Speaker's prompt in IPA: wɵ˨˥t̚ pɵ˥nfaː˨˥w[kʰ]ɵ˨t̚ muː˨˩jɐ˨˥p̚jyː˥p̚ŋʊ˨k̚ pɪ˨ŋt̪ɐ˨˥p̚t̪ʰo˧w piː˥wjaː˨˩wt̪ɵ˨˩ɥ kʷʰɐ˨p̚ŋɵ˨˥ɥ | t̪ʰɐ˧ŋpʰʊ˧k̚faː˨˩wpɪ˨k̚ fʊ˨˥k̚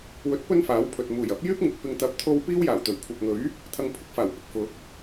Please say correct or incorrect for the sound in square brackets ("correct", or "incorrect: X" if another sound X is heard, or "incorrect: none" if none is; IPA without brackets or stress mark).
incorrect: pʰ